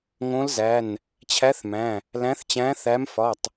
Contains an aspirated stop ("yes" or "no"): yes